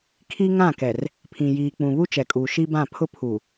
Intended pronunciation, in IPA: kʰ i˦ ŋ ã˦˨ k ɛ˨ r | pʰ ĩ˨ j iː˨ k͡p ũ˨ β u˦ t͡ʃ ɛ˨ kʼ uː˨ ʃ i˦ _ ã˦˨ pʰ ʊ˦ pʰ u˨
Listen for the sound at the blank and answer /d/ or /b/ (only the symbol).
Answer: b